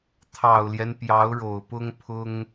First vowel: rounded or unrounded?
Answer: unrounded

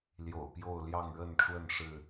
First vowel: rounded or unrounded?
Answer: rounded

